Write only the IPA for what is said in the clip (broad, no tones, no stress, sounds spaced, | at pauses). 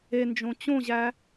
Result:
e n d͡ʒ õ t͡ɕ õ ʑ æ